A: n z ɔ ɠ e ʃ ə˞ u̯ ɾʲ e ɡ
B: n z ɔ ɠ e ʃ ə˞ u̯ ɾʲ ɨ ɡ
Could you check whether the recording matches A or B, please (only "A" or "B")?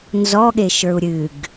B